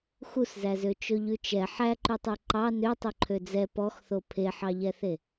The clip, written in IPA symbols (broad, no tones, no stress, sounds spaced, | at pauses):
x u s z æ z ø t͡ʃ ɵ ʎ ʉ t͡ʃ ɛ ħ æ ǃ ʉ tˤ ʉ ǃ ɑ n ø tˤ ɵ ǃʰ ø d͡z ɛ p ɔ x θ o pʰ e ħ ɑ ʎ ɛ θ e